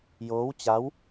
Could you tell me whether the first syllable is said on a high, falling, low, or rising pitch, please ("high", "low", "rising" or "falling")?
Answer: rising